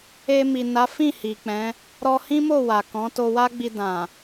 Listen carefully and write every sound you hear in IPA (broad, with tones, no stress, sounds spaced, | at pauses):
e˧ m i˨ n a˨˦ f ĩ˦˨ h i˨ k͡p ɛ̃˨˦ | ɾ ɔ˧ h ĩ˦ m o˦˨ w a˨ k ɔ̃˨˦ t o˧ w a˦ ɡ͡b i˧ d ã˨